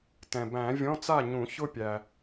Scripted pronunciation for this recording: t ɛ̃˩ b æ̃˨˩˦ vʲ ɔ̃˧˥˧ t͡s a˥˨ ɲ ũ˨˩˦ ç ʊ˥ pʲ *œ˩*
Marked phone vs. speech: incorrect: æ˩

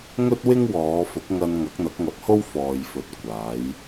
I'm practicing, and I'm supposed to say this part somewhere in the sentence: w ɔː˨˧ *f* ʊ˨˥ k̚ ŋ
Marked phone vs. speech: correct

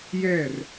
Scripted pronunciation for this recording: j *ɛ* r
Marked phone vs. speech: correct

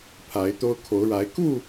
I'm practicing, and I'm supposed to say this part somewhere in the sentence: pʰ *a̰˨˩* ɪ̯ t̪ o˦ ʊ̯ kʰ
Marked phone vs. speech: incorrect: a˨˦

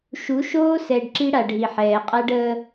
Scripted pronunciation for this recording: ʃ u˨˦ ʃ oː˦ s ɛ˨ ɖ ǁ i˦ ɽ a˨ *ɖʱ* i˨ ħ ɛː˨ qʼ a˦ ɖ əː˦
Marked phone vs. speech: correct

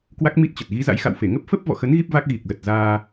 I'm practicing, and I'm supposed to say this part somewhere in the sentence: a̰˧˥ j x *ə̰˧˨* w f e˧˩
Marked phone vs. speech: incorrect: a̰˧˨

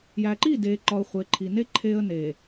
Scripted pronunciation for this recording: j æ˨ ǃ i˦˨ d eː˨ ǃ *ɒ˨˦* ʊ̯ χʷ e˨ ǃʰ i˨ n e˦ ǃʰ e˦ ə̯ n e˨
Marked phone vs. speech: incorrect: ɒ˨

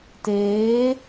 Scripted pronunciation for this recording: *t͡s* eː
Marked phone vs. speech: incorrect: t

